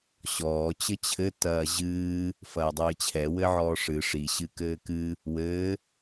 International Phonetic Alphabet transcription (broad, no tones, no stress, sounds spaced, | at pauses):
ɕ ɔː t͡ɕ ɘ t͡ɕʰ ɘ t ɐː ʑ ɨː | f ɐː dˤ ɨː t͡ɕʰ ɛ w ɘ ʕ ɔː ʂ ɨ ʂ i ɕ ɨ k ɘː k ɨ | w ɘː